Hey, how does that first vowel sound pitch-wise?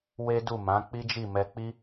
high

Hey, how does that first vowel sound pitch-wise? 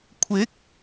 rising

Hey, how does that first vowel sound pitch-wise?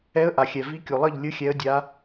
rising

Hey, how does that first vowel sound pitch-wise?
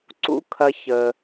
high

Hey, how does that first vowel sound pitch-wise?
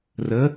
rising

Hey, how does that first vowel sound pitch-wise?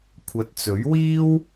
rising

